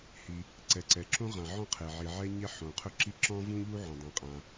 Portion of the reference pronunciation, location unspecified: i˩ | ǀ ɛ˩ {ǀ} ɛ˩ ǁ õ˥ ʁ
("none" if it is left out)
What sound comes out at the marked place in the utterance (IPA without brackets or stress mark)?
ǀ